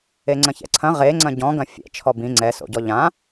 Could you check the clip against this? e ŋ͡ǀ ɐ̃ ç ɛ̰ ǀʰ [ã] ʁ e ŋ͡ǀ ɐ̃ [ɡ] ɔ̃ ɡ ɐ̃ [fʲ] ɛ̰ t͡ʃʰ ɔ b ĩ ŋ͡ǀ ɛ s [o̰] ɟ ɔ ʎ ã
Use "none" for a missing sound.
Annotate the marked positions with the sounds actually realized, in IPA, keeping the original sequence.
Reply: ɐ̃, ɟ, fʲ, o̰

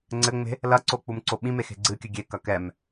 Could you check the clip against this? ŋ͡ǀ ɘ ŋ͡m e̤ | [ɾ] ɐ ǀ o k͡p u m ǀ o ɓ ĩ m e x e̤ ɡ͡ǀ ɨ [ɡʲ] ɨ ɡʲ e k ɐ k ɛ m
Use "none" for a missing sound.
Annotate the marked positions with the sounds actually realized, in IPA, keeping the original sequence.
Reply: l, kʲ

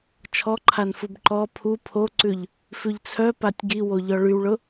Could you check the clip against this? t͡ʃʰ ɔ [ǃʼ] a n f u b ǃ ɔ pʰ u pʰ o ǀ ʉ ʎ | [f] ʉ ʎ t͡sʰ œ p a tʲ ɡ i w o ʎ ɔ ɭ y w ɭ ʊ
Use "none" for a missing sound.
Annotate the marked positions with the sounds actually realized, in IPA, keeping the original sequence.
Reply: ǃʰ, f

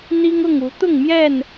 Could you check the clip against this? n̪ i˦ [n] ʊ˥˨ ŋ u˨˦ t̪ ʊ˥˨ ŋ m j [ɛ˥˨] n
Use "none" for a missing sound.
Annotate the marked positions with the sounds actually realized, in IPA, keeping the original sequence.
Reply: ŋ, ɛ˥˨

